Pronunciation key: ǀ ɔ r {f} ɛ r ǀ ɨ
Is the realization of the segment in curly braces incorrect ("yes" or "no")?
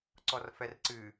no